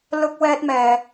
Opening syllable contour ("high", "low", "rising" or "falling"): high